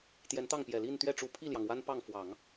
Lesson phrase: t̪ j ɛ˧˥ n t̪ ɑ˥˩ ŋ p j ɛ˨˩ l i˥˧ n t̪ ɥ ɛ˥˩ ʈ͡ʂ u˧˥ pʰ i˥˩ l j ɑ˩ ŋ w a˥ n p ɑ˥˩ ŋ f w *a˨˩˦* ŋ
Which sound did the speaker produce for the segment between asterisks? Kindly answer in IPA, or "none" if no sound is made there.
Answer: ɑ˨˩˦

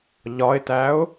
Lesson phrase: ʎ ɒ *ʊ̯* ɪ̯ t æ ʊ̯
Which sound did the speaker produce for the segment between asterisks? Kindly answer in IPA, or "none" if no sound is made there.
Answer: none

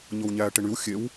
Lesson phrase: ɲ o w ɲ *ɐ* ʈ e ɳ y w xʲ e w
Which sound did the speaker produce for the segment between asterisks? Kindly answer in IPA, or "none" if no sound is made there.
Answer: æ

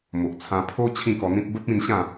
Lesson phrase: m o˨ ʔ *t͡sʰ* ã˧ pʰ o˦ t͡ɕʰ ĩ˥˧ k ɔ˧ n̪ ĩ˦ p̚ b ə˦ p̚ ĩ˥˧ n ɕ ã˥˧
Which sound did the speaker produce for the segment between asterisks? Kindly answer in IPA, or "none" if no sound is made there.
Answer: t͡sʰ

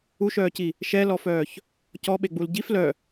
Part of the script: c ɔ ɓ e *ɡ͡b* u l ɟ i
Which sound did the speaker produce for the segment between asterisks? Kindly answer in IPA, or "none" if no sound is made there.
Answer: ɡ͡b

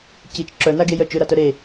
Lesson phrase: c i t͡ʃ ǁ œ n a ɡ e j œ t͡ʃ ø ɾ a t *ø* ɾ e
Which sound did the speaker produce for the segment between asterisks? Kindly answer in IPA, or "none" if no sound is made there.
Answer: œ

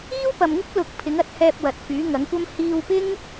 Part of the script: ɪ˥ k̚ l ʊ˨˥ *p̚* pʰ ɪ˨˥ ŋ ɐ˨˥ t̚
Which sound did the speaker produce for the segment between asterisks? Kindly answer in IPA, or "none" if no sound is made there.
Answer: k̚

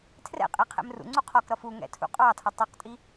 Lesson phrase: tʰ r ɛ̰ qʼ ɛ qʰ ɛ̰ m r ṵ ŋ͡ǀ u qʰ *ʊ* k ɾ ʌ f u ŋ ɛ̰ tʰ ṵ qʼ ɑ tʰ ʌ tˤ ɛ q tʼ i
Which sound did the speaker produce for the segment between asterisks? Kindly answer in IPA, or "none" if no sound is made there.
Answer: ɔ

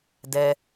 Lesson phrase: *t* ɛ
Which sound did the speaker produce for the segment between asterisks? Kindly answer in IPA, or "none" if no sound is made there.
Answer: d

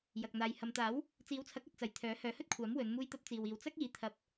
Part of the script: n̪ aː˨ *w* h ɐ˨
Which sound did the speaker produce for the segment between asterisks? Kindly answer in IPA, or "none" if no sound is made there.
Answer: j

